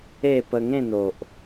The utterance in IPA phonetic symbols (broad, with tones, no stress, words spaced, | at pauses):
e˥˧ pə˧ŋẽ˥˧n̪o˨ʔ